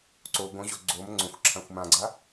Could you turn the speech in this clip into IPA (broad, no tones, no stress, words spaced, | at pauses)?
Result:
ǀo ɡõʑo ɡ͡ǀom ŋ͡ǀõxʷǁʰãxʷ mãɡ͡ǀa